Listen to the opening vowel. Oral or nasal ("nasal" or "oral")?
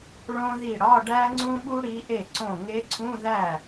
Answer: nasal